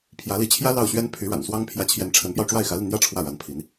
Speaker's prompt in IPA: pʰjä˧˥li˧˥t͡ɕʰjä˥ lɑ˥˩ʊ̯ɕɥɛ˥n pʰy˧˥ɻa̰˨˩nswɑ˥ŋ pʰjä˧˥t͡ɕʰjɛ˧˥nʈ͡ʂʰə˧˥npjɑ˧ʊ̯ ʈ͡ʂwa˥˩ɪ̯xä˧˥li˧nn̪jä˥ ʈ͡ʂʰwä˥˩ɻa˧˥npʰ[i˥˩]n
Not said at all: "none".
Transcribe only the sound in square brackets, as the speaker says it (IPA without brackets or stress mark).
i˧˥